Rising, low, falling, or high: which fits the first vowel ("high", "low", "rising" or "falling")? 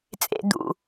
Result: high